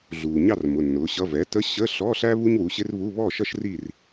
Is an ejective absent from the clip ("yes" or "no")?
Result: yes